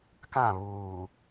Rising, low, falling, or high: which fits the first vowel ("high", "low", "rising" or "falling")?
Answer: falling